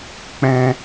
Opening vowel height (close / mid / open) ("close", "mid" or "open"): mid